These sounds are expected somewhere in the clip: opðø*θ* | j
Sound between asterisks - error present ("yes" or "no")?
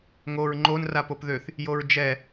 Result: no